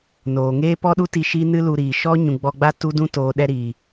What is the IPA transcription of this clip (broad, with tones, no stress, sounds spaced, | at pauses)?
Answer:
n oː˨ ŋ eː˦ p ɔ˦ ɗ u˦ t i˧ ʃ i˦ n ɨ˦ l u˧ ɾ iː˨ ʃ ɔ˦ ɲ ũ˨ ɡ͡b ɔ˧ ɡ͡b a˦ t u˦ d ũ˦ t oː˨ ɗ ɛ˧ ɾ iː˨